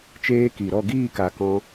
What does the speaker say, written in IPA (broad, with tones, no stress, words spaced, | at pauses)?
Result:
t͡ʃeː˧ki˨ ɾɔ˦˨ɡiː˦˨ka˨ kɔ̃˧